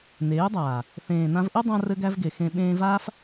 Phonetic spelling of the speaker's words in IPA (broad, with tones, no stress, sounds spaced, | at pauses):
n eː˨˦ dˤ aː˨ | θ ẽː˨ n ã˧ v ʔ ɘ˦ dˤ ã˧ r ɘ˦ ɡ æ˦ v ɡ e˨ x ẽ˧ ɓ ẽː˧ v aː˦ f